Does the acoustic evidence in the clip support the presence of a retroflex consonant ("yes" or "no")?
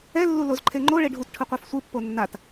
yes